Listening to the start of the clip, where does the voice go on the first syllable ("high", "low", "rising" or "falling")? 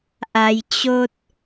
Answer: low